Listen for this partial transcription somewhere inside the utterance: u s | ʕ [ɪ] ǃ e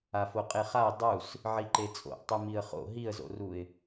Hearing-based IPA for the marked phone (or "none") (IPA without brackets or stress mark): i